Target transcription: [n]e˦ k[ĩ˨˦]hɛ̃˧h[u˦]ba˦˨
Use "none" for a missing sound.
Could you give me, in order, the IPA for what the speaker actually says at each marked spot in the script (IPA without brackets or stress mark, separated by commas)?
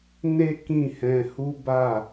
n, ĩ˦˨, u˦